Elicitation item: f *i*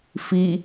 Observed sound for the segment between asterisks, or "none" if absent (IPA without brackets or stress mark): i